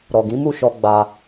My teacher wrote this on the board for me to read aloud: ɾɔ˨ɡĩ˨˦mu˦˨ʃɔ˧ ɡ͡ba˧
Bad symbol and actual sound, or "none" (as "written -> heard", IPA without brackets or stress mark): none